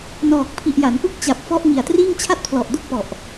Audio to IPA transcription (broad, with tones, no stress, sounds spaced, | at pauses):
n ɔː˨˩ k̚ pʰ i˨˩ ʔ j a˩˦ n p ɯ˦˥ k̚ t͡ɕ a˨˩ p̚ f ɔ˦˥ ʔ ŋ i˨˩ a̯ t r iː˥˩ ŋ t͡ɕʰ a˦˥ t̚ pʰ l ɔ˨˩ ʔ d o˥˩ k̚ p ɔ˨˩ ʔ